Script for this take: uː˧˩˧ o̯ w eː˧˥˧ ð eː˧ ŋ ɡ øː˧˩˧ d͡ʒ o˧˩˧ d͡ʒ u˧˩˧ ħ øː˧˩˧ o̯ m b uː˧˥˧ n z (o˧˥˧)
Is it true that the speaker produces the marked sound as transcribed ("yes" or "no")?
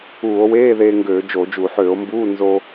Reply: no